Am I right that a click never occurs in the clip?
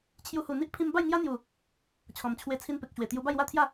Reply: yes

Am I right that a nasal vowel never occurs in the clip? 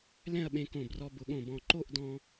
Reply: no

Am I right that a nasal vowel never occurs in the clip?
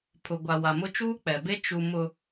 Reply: yes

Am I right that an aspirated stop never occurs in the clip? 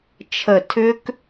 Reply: no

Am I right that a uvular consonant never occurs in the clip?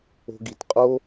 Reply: no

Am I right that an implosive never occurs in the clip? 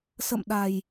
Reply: no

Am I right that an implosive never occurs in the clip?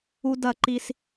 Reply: yes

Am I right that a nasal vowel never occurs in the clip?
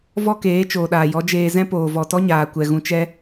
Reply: no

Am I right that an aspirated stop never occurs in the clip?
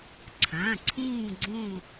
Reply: no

